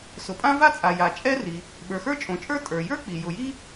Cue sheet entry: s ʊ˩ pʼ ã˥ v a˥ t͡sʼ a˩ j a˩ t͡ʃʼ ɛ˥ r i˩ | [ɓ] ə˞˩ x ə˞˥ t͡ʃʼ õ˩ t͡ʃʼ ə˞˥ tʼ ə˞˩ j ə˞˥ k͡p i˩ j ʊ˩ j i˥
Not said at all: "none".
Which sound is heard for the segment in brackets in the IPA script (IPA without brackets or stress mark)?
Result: ɓ